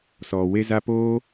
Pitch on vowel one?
low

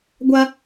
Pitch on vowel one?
high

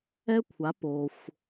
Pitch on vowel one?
high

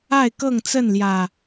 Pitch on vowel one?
falling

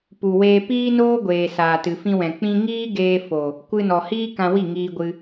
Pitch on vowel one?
low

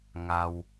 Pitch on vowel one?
low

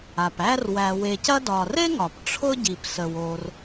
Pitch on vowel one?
low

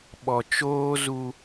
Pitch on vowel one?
low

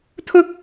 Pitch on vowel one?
high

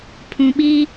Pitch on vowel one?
low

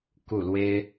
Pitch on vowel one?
falling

